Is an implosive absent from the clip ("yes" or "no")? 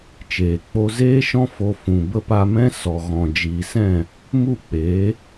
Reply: yes